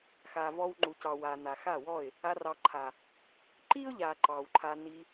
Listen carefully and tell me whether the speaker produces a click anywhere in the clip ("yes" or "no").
yes